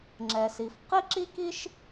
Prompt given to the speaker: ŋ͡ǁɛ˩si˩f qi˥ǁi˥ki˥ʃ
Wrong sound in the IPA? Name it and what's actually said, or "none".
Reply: none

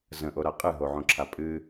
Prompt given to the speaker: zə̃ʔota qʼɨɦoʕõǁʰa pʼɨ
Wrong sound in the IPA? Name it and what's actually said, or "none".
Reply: t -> ɾ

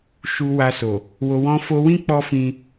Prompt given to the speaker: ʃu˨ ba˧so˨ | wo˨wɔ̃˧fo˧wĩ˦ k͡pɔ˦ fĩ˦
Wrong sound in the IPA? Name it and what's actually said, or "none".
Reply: b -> w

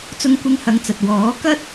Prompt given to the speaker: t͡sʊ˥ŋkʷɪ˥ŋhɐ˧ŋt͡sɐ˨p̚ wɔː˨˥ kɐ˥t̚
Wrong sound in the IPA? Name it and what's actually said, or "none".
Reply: p̚ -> t̚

